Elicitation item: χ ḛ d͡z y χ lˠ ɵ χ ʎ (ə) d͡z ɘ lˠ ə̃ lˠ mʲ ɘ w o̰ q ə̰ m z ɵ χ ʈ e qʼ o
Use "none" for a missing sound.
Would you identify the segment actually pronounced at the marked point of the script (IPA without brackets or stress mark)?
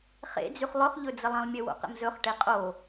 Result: ɵ